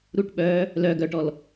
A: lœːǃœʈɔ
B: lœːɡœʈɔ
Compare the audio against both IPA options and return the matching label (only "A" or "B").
B